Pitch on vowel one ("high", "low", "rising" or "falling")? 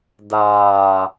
low